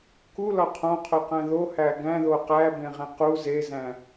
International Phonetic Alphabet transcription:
k u l ɒ qʰ õ qʰ o q æ̃ ð o h æ ɡ æ̃ ð o q æ b ẽ ʁ ẽ q u z e z æ̃

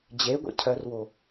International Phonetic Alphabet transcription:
d͡ʑ e ɡʷ ḛ cʰ œ r w o

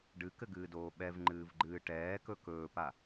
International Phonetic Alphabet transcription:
ɖ ɨ k ɘ ɡ ɨː d oː ɓ ɛ v ŋ͡ǃ ɨː v ɡ͡ǃ ɨː ʈ ɛː k ɵ k ɵː p a

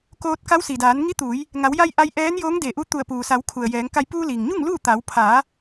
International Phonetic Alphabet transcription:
k oː˧ t̚ k a˧˥ w s i˩ d aː˩˧ n ŋ i˧˥ t̪ uː˩˧ j | ŋ a˩˧ w j a˧ j ʔ a˧ j ʔ ɛː˧˥ n j oː˧˥ ŋ d e˧˩ ʔ u˧˥ t̪ u˧˩ ə̯ p uː˩ s a˩˧ w kʰ u˩ ə̯ j ɛː˩˧ ŋ k a˧ j p uː˧ l i˩ ŋ ɲ u˥˨ ŋ l uː˥˨ t̪ a˩˧ w pʰ aː˩˧

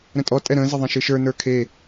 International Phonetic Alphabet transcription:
ɾ ə̃ tʼ ɔ tʼ ɛ ɾ ə̃ː z ə ðˤ ɛ̃ ʃ ɨ ʃ ə˞ n ə˞ kʰ e

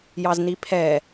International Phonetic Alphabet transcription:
j ɑ z n i pʰ ɛ

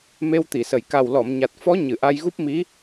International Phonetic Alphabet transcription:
m e˧ w t̪ i˨˩˨ s ə˨˩ j k a˨˩ w l ɔ˨˩˨ m ɲ a˨˩ t̚ f ɔ˧˥ ɲ ɨ˨˩˨ ʔ a˧ j ɣ u˦˥ p̚ m i˧˥

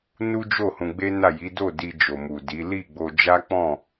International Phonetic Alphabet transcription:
n u˦ d͡ʒ o˦˨ h ũ˧ ɡ͡b e˦ n a˦˨ j i˨˦ d o˦˨ d i˧ d͡ʒ o˨ m u˨ d i˨˦ l i˦˨ ɡ͡b o˧ d͡ʒ a˦ k͡p ɔ̃˦˨

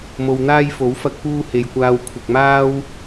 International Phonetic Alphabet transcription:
m o˧ w n̪ aː˥ j f o˨˥ w f ɐ˧ k̚ p uː˧ h e˨ j kʷ aː˧ w kʷʰ ɪ˨ k̚ m aː˥ w

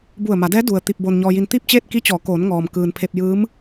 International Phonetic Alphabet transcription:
b u˧˩ ə̯ m a˩˧ d ɛː˧˥ d u˩ ə̯ t̪ i˧ p̚ b o˧ n ɲ ɔː˧ j i˧ n t̪ i˥˨ p̚ t͡ɕ eː˥˨ t̚ k i˧˥ t͡ɕ ɔː˩˧ k oː˩˧ n ŋ ɔː˩ m k ɯː˩ n pʰ e˧ p̚ j ɯː˧˥ m

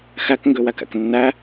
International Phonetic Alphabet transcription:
x æ k ŋ ɡ ø w æ k æ̰ k nː æ

